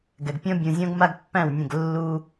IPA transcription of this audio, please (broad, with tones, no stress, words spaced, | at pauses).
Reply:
ɡɛ˨ɡpʲɔ̃˦ bʲũ˨zʲɔ̃˦ɡ ma˦ɡpːæ̃˦˨wnʲə̃˦˨ɡ lːu˦